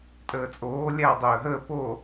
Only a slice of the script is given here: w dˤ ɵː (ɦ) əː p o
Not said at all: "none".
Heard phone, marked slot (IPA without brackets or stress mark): ɦ